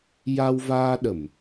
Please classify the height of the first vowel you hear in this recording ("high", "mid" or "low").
low